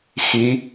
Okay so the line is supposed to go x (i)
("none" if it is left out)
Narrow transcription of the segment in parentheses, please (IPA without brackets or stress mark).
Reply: i